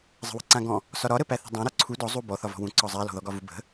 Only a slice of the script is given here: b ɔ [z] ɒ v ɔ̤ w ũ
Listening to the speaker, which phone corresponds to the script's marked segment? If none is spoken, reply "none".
θ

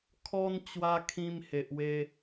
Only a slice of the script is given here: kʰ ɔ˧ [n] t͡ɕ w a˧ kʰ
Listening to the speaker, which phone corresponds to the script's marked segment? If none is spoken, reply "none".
n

